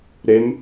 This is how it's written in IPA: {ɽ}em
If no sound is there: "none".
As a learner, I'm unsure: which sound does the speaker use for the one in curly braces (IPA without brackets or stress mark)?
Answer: ɾ